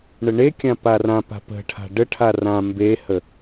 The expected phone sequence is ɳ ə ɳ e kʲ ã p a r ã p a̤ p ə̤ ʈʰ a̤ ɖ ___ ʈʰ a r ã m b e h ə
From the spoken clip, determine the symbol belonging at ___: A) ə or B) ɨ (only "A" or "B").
A